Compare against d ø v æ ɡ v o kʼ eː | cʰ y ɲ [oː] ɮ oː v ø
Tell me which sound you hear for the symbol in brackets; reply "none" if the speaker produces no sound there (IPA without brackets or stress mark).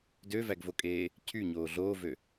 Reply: oː